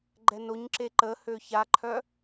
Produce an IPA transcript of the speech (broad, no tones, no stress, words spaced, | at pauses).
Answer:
ɡ͡ǃɛnoɲǁe ǃəhø çaǃʰœ